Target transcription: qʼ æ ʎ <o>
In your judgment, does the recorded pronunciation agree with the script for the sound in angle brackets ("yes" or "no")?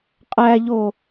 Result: yes